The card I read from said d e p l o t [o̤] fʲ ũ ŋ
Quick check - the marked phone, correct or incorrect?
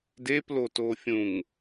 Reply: incorrect